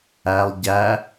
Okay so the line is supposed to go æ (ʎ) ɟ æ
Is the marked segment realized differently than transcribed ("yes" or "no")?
yes